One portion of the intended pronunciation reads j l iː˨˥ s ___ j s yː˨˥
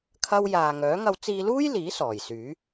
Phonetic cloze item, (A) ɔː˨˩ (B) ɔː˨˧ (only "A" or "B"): A